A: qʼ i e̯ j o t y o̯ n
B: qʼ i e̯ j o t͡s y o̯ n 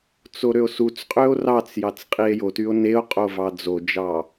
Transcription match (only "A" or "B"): A